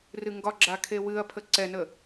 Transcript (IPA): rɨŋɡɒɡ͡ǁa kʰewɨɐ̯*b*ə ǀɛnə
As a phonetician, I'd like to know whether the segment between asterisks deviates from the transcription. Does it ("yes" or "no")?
yes